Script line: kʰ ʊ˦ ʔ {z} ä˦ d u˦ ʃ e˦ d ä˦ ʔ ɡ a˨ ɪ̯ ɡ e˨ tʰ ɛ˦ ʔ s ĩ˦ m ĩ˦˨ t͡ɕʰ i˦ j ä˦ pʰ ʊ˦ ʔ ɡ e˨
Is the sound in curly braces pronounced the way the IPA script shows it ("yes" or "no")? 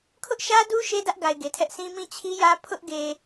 no